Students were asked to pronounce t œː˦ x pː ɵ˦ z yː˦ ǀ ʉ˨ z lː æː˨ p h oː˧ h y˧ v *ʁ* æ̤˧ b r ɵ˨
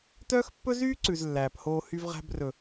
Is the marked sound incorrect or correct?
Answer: correct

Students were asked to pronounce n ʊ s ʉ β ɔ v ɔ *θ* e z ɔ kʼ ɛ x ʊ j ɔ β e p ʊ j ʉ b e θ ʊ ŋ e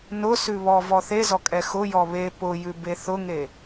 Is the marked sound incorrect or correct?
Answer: correct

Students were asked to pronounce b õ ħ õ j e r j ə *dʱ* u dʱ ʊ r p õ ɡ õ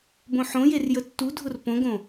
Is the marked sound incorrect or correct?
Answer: incorrect: tː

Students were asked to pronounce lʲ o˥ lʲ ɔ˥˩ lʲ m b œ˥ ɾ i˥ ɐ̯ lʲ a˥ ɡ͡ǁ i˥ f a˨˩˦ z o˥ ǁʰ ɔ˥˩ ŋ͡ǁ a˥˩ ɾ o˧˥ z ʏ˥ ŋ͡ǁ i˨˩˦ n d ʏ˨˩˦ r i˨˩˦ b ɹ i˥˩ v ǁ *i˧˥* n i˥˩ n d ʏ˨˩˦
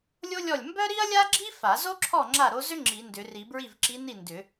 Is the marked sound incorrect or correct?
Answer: correct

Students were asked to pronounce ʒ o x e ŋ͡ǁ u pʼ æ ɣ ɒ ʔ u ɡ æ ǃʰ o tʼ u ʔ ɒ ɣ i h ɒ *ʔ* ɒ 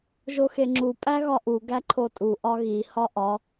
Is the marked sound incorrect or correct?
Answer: correct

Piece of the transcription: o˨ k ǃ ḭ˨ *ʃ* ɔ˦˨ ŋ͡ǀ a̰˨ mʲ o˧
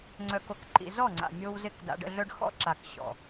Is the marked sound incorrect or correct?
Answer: incorrect: z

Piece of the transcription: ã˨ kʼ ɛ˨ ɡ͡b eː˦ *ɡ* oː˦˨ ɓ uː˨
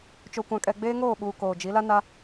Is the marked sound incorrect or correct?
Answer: incorrect: ŋ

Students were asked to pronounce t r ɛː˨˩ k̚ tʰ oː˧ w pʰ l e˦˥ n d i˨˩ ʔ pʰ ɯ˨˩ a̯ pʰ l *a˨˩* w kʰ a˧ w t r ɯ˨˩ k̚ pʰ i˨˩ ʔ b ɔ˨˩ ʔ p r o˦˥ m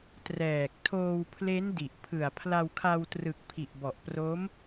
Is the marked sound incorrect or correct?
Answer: incorrect: a˧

